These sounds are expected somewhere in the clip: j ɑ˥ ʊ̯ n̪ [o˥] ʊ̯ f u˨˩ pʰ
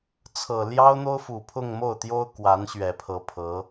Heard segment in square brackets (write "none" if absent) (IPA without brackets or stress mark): o˥